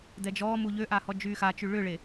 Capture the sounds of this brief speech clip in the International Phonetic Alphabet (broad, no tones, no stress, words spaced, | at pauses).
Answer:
dɛd͡ʒɔːmu ʎøʔa hɔd͡ʒyːxat͡ʃy ɭʏɭe